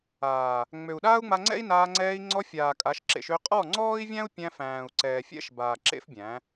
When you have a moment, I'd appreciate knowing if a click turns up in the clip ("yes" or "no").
yes